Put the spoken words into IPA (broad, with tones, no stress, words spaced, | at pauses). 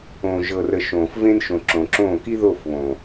õː˨ ʒɤ˨rə˨ ʃõː˨fvẽ˦n ʃõ˨ǁõ˨ǁõː˦˨ ki˦ðo˦˨fβõ˨